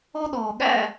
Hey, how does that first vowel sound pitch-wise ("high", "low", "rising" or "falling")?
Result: high